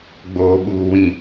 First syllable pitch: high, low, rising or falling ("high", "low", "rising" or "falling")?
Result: low